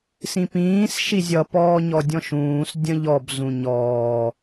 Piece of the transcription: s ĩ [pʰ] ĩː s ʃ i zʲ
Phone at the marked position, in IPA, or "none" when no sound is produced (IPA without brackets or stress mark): p